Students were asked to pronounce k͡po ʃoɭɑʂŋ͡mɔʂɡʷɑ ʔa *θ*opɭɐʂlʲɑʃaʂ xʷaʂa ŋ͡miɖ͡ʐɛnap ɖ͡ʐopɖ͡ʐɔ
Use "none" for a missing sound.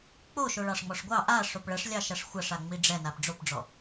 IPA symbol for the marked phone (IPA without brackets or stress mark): ʂ